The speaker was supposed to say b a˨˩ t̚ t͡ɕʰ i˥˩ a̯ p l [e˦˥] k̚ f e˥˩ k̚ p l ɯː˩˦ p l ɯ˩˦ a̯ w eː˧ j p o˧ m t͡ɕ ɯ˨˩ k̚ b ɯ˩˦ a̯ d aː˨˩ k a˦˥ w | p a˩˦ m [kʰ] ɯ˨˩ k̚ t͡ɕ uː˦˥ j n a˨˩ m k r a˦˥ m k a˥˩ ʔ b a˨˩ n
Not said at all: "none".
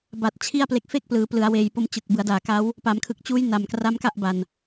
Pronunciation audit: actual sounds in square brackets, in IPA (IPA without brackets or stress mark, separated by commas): e˦˥, kʰ